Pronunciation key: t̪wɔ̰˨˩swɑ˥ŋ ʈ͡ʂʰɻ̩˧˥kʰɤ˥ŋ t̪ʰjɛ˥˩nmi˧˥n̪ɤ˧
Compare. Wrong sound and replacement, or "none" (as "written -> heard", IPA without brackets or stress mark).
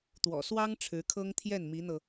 none